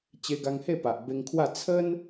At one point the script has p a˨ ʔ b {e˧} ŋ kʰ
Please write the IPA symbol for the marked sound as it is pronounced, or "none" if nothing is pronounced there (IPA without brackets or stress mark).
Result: e˧